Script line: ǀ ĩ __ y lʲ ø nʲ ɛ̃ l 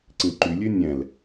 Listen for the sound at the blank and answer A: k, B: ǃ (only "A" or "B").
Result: B